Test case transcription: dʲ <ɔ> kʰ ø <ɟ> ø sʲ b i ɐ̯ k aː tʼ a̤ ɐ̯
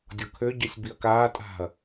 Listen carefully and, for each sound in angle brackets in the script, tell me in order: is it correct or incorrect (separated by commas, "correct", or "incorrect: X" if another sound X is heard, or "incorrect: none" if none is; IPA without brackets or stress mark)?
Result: correct, correct